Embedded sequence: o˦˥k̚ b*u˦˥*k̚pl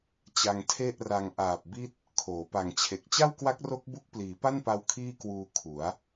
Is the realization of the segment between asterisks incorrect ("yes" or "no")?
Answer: no